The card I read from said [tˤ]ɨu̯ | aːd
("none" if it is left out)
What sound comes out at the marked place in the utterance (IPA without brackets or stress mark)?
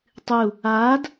tˤ